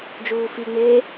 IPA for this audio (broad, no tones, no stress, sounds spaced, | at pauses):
d͡ʒ uː f i ŋ͡m eː